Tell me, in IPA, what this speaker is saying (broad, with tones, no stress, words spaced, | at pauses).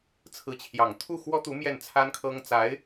t͡sʰɹ̩˧˥t͡ɕʰjɑ˨˩ŋ t̪ʰu˥˩xwɔ˥t̪u˧˥ mjɛ˥˩nt͡sʰa˥nkʰɤ˥ŋ t͡sa˧˥ɪ̯